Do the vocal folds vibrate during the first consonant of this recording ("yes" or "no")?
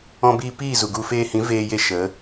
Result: yes